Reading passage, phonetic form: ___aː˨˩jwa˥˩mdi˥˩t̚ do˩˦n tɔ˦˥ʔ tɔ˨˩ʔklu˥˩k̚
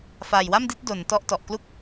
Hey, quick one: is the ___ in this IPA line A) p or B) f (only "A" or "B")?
B